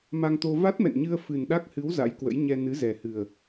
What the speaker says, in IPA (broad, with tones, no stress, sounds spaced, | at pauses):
m a˧ ŋ t̪ o˧ v a˦˥ t̚ m ɛ̰˧˨ n ɲ ɨ˧ ə̯ f ɨ˨˩ n ɗ a˦˥ k̚ h ɨ˨˦ w z a̰˧˥ j k w ə̰˧˥ j ɲ ɛ˧ n ɨ˨˦ z ɛ˨˩ h ɨ˨˩ ə̯